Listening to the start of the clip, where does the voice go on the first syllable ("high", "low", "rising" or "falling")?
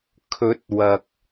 rising